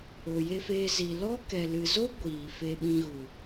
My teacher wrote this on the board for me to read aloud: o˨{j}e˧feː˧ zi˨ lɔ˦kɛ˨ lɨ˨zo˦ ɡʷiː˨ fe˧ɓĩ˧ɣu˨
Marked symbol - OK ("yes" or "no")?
yes